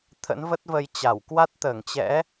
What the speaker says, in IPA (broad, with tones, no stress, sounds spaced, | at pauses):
t̪ʰ ə̰˧˥ n v ə˦˥ t̚ v ə˧ j t͡ɕ a˧˩ w k w a˦˥ t̚ t̪ əː˧˩ ŋ t͡ɕ ɛ̰˧˥